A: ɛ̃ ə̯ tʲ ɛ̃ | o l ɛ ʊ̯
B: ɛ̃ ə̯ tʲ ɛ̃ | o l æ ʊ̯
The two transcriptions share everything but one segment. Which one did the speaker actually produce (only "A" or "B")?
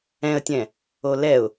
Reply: A